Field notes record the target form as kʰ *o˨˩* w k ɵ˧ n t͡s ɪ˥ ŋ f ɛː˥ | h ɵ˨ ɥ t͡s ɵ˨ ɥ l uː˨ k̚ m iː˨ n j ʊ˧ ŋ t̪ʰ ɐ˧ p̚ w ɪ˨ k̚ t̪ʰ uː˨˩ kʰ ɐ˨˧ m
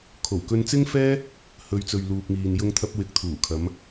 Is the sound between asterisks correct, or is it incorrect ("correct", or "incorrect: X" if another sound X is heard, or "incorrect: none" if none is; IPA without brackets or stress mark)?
correct